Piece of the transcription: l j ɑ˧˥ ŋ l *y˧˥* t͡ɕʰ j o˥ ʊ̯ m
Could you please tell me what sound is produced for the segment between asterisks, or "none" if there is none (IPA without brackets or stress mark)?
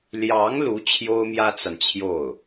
u˧˥